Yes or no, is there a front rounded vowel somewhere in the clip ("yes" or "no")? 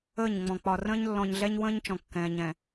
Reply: no